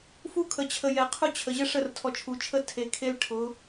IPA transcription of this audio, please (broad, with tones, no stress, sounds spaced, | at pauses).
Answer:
f u˦ kʰ ə˨ t͡ɕʰ ə˨ j ɛ˨ qʰ ʊ˦ t͡ɕʰ ə˨ ʑ ə˦ ʂ ə˦˨ r tʰ ɔ˨ t͡ʃʰ u˨ t͡ʃʰ ə˦ tʰ e˨ kʰ e˦ l ʈʰ ʊ˨˦